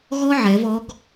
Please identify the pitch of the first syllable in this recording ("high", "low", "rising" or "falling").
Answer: high